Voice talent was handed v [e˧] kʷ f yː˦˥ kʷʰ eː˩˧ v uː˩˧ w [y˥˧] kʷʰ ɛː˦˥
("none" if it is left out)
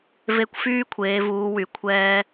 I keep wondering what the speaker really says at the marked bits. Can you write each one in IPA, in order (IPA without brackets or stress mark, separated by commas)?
e˧, y˩˧